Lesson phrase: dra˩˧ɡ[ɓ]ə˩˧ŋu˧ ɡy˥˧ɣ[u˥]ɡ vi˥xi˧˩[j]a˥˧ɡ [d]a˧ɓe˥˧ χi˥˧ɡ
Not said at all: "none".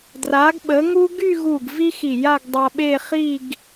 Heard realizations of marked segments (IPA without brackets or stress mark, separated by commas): ɓ, u˧˩, j, dˤ